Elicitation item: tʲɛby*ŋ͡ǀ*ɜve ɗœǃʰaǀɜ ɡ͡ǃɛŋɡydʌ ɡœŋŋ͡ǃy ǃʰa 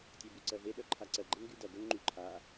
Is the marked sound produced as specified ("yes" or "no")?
no